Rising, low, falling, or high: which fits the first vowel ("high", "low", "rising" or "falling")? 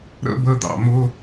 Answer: high